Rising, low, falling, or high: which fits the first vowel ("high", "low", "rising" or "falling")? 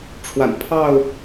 low